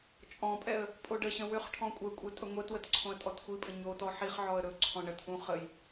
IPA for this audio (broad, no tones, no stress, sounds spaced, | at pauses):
t͡ʃʼ ɔ̃ pʼ ɛ ə̯ | pʼ o ɖ ə ɕ ə̃ w ʏ χ ʈʰ ɔ̃ kʷʼ ɛ kʷʼ ɛ tʼ ə ŋʷ ɛ t w ə t ǀʰ õ ə̯ tʼ ɔ t xʷ i pʼ ə̃ ɲ o t ɔ ħ i χ ʕ ɔ ə̯ ɾ ɵ ǀʰ ɔ̃ ɳ ə t ʔ ũ χ ə j